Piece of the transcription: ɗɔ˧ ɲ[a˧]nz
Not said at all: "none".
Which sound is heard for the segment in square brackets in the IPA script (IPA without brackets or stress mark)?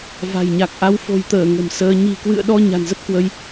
a̤˨˩